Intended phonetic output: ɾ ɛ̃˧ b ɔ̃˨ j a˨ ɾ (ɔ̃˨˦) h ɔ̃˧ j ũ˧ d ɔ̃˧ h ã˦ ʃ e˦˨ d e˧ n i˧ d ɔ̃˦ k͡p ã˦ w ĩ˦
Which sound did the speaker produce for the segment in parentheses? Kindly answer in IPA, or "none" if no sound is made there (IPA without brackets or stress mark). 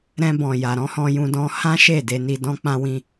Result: ɔ̃˨˦